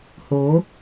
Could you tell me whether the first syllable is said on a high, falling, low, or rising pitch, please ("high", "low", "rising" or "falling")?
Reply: rising